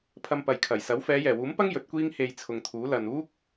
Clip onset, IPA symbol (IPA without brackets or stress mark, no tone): pʰ